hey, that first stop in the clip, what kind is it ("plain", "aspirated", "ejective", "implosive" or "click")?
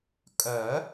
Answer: ejective